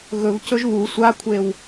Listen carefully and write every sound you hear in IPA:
ɣ ɵ v c ɵ ʒ β u sʷ a kʷʰ e w

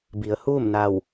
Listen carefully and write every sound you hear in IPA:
b i˩˧ ə̯ h uː˥˨ m n a˧˩ w

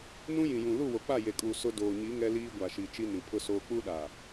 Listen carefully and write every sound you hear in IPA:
n ũ˦ j ĩ˨ j ũ˨ l u˦˨ w o˨ k͡p a˦˨ j e˨ kʼ uː˨ s ʊ˦ d oː˨ ɲ i˨˦ ŋ ɛ˦ l iː˦ ɡʷ a˨ ʃ i˨ t͡ʃ i˦ n ĩ˨ pʰ ʊ˦ s oː˦ k͡p u˦ ɗ a˨

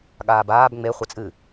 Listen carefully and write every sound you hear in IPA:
ɠ aː b aː b ŋ͡m e χʷ ɛ t͡sʼ ɨ

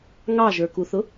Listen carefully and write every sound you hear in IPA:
ŋ ɑ ʒ ə˞ k u θ ʊ

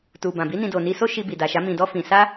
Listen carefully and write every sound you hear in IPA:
t u˨ b ã˨ b i˨˦ n ĩ˧ d o˨ n i˧ s o˦ ʃ i˧ b i˨ d a˨ ʃ a˨˦ m ĩ˧ d ɔ˦ f ĩ˧ s a˦

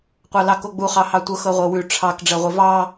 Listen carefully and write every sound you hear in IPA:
qʷ ɑ l ɑ k o ɡ͡b u χ ɑ h ɑ tʷ ɤ x ɤ ʁʷ ɤ w ʉ ʈ͡ʂʰ ɑ k ɖ͡ʐ ɜ ʁʷ e v ɑ

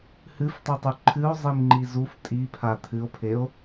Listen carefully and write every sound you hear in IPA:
h ɨ f tˤ i tˤ u ǃʰ ɨ o̯ zˤ i m ŋ͡ǃ i z u f tʼ i pʰ a t̪ʰ ɨ o̯ pʰ e o̯

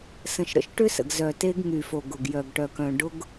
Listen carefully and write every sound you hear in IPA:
s ə̃˨ ʃ ɾ ə̰˨ ʃ ʈ ʏ˦ s ə̰˨ ɡ z œ˨ t e˦ ɡ ŋ y˨ f o˨ ɡ ʊ˨ ɡ j œ˨ ɡ ʈ œ˨ k œ̃˨ ɖ ʊ˦ ɡ

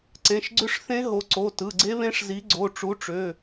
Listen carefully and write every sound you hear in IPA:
ǀ ẽ˩˧˩ ʃ ɡ͡ǀ ʏ˦˥ ʂ θ ẽ˦˥ ɦ o˨˥ ǀ o˩˧˩ t ɯ˩˧˩ ɡ͡ǀ e˦˥ β ẽ˦˥ ʂ z i˨˥ ɡ͡ǀ o˩˧˩ ʈ͡ʂ u˨˥ ʈ͡ʂ ø˩˧˩

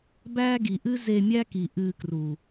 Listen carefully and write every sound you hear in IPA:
b æː˦ ɡ i˨ ʔ ɨ˦ z e˧ mʲ æ˦ k i˨ ʔ ɨː˧ k r u˨

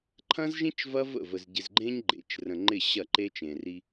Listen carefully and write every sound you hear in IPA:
ǃʰ ɐ̃˦ z ʒ ĩ˦ t͡ʃ v ɐ˦ v ə̰˦˨ v ə˨ z ɟ ɪ˨ z ɡ͡ǃ ẽ˦ ɲ ɡ͡ǃ ḛ˨˦ t͡ʃ r ə̃˨ ŋ͡ǃ ɪ˦˨ ɕ ɐ˦˨ ǃ e˦ t͡ʃ ẽ˨ r i˦

